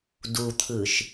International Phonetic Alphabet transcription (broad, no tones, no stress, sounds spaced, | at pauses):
d u t̪ʰ ɯ ʃ